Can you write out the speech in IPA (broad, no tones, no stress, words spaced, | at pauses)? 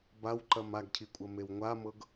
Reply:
bawǃɐm aɡcʰikʷʼɐmew ŋʷamɤɡ